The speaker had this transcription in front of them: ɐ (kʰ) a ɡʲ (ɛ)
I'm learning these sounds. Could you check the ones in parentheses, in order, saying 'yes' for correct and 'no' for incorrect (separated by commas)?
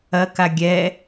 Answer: no, yes